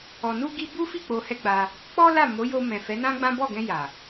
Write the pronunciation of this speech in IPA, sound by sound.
ɔ˨ n u˧ ɡ i˦ b u˦ f i˦˨ k͡p o˧ h ɛ˦ ɡ͡b a˧ | k͡p ɔ˦ l a˦˨ m o˨˦ j o˧ m ɛ̃˨ f ɛ˨˦ n ã˦ ɡ͡b ã˦ b ɔ˦˨ ɡ ɛ̃˧ j a˨

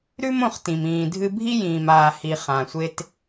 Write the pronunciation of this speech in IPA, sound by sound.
ɾ ʉ˥ m õ˧ χ t ĩ˩ m ĩː˩ dʱ ɨ˧ bʱ i˥ j ĩː˩ m aː˩ h i˩ χ ã˩ sʷ e˧ t

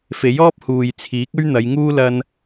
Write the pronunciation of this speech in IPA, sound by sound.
f e˨˥ j ɔː˥ p̚ h uː˨ j t͡sʰ iː˨˥ k̚ ɵ˥ ɥ n̪ ɐ˨˧ j ŋ uː˥ l ɐ˥ n

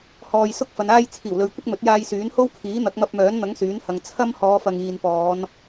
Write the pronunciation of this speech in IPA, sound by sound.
h ɔː˨ j s ʊ˥ k̚ f ɐ˨˧ n aː˥ j t͡sʰ iː˨˩ w l ɵ˨˧ ɥ kʷ ɪ˥ k̚ m ɵ˨˥ t̚ j aː˧ j s yː˨˥ n h o˥ w kʰ iː˨˥ n̪ ɐ˨˥ k̚ m ɐ˧ p̚ m œː˨˥ n n̪ ɐ˨˥ ŋ s yː˨˥ n h ɐ˨ ŋ t͡sʰ ɐ˥ m h ɔː˨˧ f ɐ˨ ŋ iː˨ n p ɔː˨˧ n

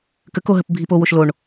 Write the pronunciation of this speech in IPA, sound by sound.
k ə k o ɦ ə p bʱ i p o w o ʃ l o ɳ

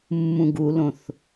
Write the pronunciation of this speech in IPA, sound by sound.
mː ũ ɡ u l õ θ

